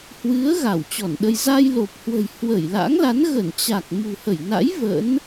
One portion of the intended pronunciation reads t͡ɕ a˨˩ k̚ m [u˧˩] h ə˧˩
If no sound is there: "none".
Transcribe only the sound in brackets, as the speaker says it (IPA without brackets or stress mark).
ṳ˨˩